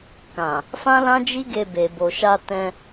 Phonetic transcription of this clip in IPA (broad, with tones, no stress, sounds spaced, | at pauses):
k ã˨ | f ã˦ l ã˦ d͡ʒ i˦ ɡ e˧ b e˨ b o˨ ʃ a˧ t ɛ̃˧